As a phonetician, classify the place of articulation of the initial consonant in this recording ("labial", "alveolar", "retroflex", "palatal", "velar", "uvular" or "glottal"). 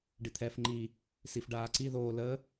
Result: retroflex